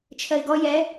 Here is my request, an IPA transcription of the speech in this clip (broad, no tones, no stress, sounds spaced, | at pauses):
t͡ʃʰ ɜ ɪ̯ ɡ ɔ j ɛ